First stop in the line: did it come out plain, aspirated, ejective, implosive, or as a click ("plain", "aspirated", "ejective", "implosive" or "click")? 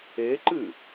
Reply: click